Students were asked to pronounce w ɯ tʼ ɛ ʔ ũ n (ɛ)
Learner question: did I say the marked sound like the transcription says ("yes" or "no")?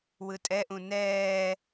no